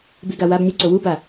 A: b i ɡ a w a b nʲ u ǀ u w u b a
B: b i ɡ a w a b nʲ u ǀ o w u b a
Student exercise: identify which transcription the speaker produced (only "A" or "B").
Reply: B